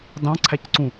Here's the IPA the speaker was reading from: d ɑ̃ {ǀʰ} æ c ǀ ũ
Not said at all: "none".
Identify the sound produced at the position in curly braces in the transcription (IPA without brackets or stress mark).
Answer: ǀʰ